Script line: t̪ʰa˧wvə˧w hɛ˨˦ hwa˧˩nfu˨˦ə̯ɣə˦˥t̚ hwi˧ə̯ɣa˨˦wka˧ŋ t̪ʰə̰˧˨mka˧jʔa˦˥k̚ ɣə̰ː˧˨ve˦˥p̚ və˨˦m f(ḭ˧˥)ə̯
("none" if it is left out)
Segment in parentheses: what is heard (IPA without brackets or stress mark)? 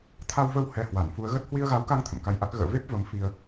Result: i˧